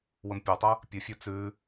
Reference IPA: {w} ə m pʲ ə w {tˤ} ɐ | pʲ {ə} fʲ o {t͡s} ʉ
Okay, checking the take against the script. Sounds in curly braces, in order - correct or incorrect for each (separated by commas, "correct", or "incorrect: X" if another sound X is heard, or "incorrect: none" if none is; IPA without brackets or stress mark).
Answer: correct, correct, correct, correct